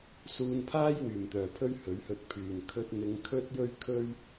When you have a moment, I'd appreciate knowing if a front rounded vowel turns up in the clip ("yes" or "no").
yes